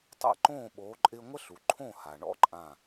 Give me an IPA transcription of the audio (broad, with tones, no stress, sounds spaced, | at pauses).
tˤ a̰˥˨ ǃ õː˥˨ ɓ oː˨˦ ǃʼ ɪː˦ ŋʷ ə˦ ɬ u˩ ǃʰ õ˥˨ h a˩ ɳ ɔ̰˦ ǃʼ ã˧˩